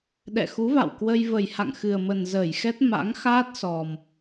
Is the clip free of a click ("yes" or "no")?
yes